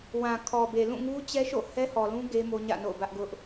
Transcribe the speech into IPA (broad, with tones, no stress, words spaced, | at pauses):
wã˨kʰɔ˨be˨ lũ˦˨ŋu˦ t͡ɕɛ˦ʃo̰˦˨ hɛ˦hɔ˨lũ˦ ɡe˦ mo˦ɲä̰˦˨no̰˦˨ʊ̯bä˦ʔ ɡʊ˦ʔ